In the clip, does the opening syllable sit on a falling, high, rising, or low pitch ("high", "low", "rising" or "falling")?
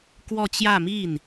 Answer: falling